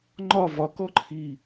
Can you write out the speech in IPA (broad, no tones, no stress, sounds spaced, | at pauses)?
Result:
ŋ͡ǃ ɒ v ɒ k ɔ ǃʰ i